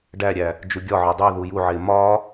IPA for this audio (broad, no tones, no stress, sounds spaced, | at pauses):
ɖ æ ɾʲ æ | d͡ʒ u ɡʲ ɒ ʕ ɒ dˤ i ð u j u ʕ e m ɒ